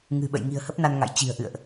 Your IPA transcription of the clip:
ŋ ɨ̤˨˩ ɓ ə̰˧˨ j ŋ i̤˨˩ ə̯ h ə˦˥ p̚ n a˧ n ŋ a̰˧˨ j t͡ɕ i̤˨˩ ə̯ ʔ ɨ̰˧˨ ə̯ ʔ

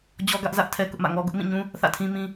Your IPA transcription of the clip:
d͡ʑ ɔ˦ ɡ ä˦ ʔ z ä˦ ʔ tʰ ɛ˦ k ʊ˦ ʔ m ä̰˦˨ ŋ ɔ˦ ɡ ʊ˦ ʔ m ĩ˦˨ ɲ ũ˦ | θ ä̰˦˨ tʰ ĩ˦ m ĩ˦

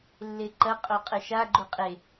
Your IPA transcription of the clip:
lː e ǃ ɐ qʼ o qʼ ɘ ʃ a ɡ͡ǃ u qʼ e

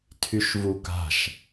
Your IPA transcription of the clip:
tʰ y ʃ v u k a̤ ʃ

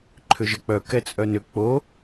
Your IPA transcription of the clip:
ǃʰ ʏ ʒ ə k͡p œ k ɛ t͡sʼ œ n ʏ k͡p o

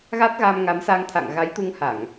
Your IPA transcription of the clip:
ɣ a˦˥ t̚ ɣ a˧ m ŋ a˨˦ m s a˧ ŋ t̪ʰ a̰˧˨ ŋ ɣ a˨˦ j t̪ u˧ ŋ h a˧˩˨ ŋ

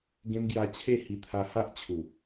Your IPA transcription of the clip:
ɡ ẽ˧ m ɡ j a˧ t͡ɕʰ e˥˧ h i˧ t̪ʰ a˧ h a˦ ʔ t͡ɕʰ u˨˩

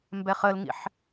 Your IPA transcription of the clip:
m b ɛ χ ə l ŋ ḭ ħ

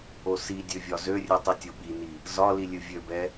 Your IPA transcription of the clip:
o s i dʲ ø vʲ ɒ z ø rʲ ɨ tˤ i tʲ o ɓ i n i | z ɒ l i lʲ ɨ vʲ ø b ɛ

